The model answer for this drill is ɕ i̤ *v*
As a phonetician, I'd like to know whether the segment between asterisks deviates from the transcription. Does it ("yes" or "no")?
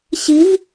no